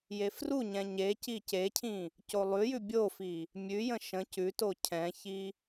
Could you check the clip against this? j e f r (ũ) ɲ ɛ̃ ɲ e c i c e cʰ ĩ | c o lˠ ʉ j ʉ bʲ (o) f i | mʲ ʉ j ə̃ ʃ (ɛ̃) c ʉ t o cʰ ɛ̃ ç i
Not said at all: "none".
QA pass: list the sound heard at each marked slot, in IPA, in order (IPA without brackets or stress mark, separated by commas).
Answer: u, o, ə̃